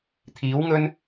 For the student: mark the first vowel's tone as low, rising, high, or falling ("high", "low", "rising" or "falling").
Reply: rising